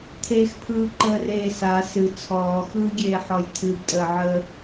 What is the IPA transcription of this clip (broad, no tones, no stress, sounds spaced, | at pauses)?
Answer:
tʰ e x pʰ ɯː ǃ əː r eː s a s ɨ t͡sʰ ɔː x ɯː ɡʲ eː ħ ɔ j tʰ ɨ b tʼ əː ʕ əː